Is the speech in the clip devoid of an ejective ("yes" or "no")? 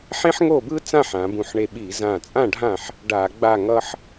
no